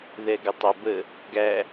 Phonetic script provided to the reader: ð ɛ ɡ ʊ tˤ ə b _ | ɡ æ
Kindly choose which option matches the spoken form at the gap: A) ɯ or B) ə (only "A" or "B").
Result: B